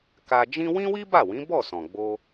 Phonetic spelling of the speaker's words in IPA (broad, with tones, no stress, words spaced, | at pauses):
ka˧d͡ʒĩ˦ wĩ˦wi˦ba˦˨wĩ˨˦ bɔ˦˨ sɔ̃˨ɡ͡bo˧